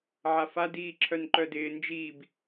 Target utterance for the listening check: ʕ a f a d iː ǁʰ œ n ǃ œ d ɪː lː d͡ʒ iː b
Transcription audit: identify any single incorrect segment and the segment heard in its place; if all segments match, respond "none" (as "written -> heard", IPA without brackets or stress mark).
lː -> n